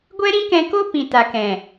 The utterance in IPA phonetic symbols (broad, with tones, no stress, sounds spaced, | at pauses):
ɡʷ ɛ˦ ɾ ĩ˦ k ɛ̃˧ k o˦ p ĩ˨ t a˨ k ɛ̃˨